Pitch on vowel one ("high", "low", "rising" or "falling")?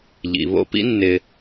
low